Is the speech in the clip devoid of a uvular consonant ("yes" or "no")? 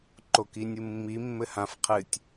no